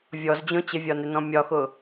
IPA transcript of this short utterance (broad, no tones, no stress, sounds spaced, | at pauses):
vʲ ɔ z d͡ʑ õ t͡ɕ ɪ vʲ ɒ n ɪ n ɔ̃ mʲ ɒ x ʊ